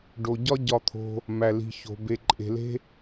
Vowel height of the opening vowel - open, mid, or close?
mid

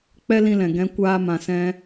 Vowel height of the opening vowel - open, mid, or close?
mid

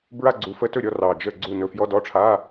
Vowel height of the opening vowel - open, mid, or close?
open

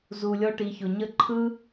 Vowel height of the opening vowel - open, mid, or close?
close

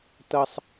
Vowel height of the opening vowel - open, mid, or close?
mid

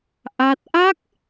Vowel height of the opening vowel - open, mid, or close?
open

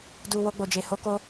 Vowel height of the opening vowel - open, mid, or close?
close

